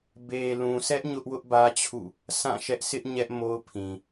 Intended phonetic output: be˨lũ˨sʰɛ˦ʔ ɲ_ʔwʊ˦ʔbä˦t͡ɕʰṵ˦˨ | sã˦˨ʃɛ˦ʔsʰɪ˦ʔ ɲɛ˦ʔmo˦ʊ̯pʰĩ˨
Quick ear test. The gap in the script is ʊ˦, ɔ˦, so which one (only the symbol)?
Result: ʊ˦